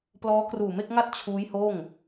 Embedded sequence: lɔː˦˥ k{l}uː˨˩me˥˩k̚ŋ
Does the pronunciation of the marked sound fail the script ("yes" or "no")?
yes